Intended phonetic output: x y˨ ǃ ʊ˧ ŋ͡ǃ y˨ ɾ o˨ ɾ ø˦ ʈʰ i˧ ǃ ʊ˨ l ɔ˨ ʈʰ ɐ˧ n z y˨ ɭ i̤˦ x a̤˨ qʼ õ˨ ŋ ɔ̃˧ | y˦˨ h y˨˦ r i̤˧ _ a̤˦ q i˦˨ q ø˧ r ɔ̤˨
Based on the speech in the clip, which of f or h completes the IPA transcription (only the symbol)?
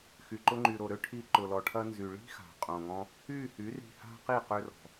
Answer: h